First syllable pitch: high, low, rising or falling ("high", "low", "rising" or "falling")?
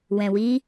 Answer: low